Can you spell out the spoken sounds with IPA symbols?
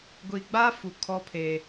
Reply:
ɡʷi˨ɡ͡ba˦ fu˨kʰɔ˦pʰe˨

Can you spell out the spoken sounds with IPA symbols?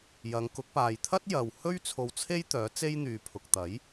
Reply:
jɐ˨˧ŋkʊ˨˥k̚ paː˨jt̪ʰɐ˥t̚jɐ˨w hɵ˥ɥt͡sʰo˧w t͡sʰe˥j t̪œː˨˥t͡se˥jn̪yː˨pʰʊ˨k̚ t̪ɐ˨˥j

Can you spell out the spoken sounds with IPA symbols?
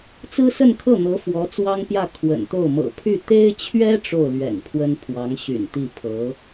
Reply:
t͡sɹ̩˥sə˥˧nkʰɤ˥˩ n̪ɤ˧˥ fwɔ˧˥t͡swɑ˥ŋpjä˥˩ kʰwə̰˨˩nt̪o˥˩ʊ̯ mɤ̰˨˩pʰy˥˩ t̪e˥ɪ̯t͡ɕʰɥɛ˥ ʈ͡ʂo˥˩ʊ̯lɥɛ̰˨˩n pʰwə˥npʰwɑ˧˥ŋɕy̰˨˩nt̪i˥˩ pʰɤ˧˥

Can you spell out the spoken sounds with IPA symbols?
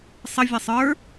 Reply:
sˤə vʲɐsˤə˞

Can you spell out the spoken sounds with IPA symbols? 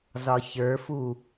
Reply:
zɒçə˞fu

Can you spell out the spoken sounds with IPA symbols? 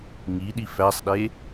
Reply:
ŋiɗi fæsˤɗe

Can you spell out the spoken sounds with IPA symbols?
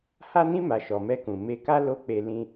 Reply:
ha˧nĩ˧ma˨ ʃɔ˨mɛ˧kũ˨ me˧ka˦ lo˦˨ k͡pe˧ lĩ˧

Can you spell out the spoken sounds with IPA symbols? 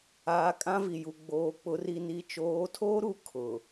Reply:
aː˨ kʼã˦vi˨ju˨ ɡ͡boː˨k͡pʊ˨˦ ri˨ni˨t͡ʃoː˨˦tʰoː˦ ɾu˦ kʰʊ˨

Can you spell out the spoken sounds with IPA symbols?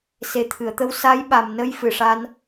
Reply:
se˨˩t̪ʰɨ˨˩˨ə̯t̪ə˧w sa˧˥jɓa˨˩mnə˧j fɨ˨˩ʂa˧n

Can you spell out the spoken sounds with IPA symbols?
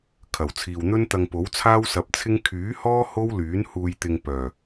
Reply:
kʰɐ˨˩wt͡sʰiː˨wn̪ɵ˥nt̪ɐ˧ŋ po˨˥wt͡sʰaː˥wsɐ˨˥p̚t͡sʰɪ˥ŋ kʰyː˨˥hɔː˥ ho˥wlyː˨˥n huː˧jt̪ɪ˧ŋ pœː˨˩

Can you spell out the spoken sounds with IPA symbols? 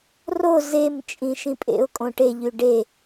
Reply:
ro zem t͡ʃʼĩʃĩpʼḛʊ̯kʼõ ʈeʎy ɖe

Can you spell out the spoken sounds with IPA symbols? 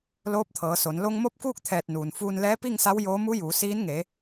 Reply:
loː˧˥p̚t̪ʰɤː˩˧so˩˧n lo˧ŋmo˥˨p̚kuː˥˨k̚ t̪ʰɛː˧˩t̚nuː˩nfuː˧nlɛː˧˥ pi˥˨ŋsa˧˥w joː˧˥ mu˧˥juː˩˧siː˧˥n ŋe˩˧

